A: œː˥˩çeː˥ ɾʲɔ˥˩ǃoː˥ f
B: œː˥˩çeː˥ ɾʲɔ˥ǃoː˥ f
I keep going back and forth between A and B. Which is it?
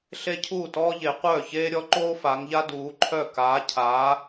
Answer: B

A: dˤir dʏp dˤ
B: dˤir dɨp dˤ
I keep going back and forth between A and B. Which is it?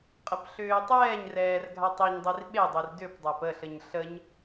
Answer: A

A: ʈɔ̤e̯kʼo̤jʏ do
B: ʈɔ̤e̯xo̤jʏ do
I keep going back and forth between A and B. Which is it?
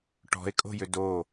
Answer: A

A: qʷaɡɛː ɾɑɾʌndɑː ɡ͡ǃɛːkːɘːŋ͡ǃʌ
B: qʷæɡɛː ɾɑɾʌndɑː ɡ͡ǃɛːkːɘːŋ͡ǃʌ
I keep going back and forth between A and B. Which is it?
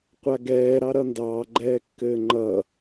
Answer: A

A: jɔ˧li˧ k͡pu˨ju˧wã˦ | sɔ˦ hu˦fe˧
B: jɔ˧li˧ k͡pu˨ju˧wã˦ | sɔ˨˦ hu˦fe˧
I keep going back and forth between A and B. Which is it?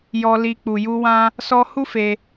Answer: A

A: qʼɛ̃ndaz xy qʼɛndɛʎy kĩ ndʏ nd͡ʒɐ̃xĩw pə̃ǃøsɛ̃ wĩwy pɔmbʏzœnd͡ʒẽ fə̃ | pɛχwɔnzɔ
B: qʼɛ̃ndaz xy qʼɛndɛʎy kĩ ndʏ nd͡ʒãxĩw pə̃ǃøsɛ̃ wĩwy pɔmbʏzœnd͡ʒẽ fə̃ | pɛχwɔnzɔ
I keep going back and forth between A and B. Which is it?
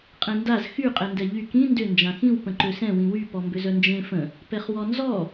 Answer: B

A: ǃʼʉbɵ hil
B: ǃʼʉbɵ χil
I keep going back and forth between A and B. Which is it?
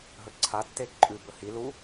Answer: A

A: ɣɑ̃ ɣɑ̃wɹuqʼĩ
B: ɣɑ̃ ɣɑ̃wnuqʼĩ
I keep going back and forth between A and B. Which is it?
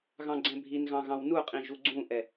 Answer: B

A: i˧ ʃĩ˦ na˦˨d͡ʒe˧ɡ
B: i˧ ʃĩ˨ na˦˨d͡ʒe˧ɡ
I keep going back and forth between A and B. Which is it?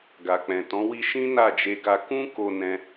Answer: A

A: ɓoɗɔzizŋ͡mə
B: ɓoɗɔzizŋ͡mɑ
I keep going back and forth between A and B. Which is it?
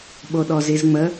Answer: A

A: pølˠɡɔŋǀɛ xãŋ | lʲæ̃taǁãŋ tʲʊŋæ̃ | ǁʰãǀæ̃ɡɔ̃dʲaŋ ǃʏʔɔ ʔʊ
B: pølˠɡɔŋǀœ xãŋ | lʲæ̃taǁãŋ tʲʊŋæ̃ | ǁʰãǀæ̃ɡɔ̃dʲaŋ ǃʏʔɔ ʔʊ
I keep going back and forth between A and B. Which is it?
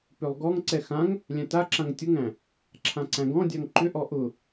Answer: A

